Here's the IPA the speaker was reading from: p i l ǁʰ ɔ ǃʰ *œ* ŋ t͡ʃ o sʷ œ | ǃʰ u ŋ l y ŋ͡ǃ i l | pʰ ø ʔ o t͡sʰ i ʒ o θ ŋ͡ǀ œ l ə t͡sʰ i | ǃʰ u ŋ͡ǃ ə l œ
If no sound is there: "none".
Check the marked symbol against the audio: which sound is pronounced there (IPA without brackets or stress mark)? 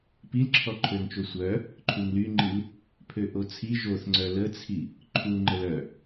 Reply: ø